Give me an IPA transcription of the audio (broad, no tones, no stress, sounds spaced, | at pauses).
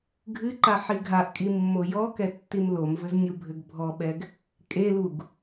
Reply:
ɡʱ ɨ ǃ a ħ i ɡʱ a ʔ kʼ i mː o j ɔ k ɛ tː i m l o m v ɘ z nʲ u bʱ ɘ ɡ bʱ ɔ ɓ ɛ ɡ | kʼ e l u ɡ